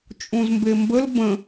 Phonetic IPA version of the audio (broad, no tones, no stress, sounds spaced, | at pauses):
t͡ʃʼ ũ z m b e m b ə l b ə̃